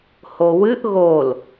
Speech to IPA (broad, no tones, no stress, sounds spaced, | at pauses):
h o w ɨ ʔ ɣ o l